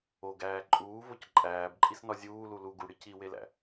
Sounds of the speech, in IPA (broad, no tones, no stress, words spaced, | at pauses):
oɡæː ǃʼuːvoc ǃʼæːbǃʼisnɒ zʲuːlu lu ɡuɽi ciwelæ̰